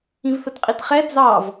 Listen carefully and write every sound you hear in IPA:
ĩ v θ ə t qʼ i t χ ɛ d͡z ɑ v

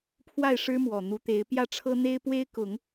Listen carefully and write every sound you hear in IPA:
pʰ w a˥˩ ɪ̯ ʂ ɻ̩˥ m w ɔ˨˩ n̪ u˧˥ t̪ e˧˥ ɪ̯ p j ä˥˩ ʈ͡ʂʰ ɤ˥ n̪ e˥ ɪ̯ p w e˥ ɪ̯ k ʊ˨˩˦ ŋ

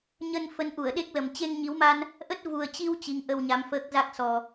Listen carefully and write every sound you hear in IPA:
ɲ ə˧ n f ə˨˦ n ʔ u˧˩ ə̯ ɗ e˦˥ k̚ l ə˨˩ m t͡ɕ e˧ ŋ ɲ i˨˦ w m a˧ n | ʔ ə˦˥ t̚ v u˨˩ ə̯ t͡ɕ i˧ w t͡ɕ i˨˦ ŋ ʔ ə˧ w ɲ a˨˦ m f əː˦˥ k̚ z a˦˥ k̚ s ɔ˨˩

